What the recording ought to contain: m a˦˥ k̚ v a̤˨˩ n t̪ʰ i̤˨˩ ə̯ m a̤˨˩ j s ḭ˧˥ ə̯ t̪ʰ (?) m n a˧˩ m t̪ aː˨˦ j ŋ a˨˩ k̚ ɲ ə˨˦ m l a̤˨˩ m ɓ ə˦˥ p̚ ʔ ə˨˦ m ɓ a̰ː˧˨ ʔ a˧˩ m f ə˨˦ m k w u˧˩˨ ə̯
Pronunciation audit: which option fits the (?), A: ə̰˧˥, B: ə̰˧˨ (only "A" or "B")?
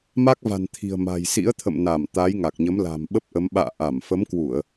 B